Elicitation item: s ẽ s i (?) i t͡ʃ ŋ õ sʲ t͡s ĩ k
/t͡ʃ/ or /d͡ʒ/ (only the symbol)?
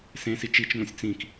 t͡ʃ